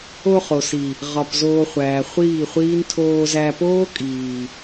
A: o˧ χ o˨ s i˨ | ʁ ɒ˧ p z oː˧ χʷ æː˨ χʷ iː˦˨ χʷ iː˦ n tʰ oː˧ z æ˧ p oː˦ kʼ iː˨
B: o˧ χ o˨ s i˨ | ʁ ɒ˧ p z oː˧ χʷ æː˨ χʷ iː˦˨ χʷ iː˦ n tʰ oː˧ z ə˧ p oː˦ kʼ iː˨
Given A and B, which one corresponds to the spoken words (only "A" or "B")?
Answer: A